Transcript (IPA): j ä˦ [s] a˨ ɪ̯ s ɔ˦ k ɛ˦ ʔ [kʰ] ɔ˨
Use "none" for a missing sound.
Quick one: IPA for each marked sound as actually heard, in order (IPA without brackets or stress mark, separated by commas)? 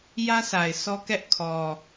s, kʰ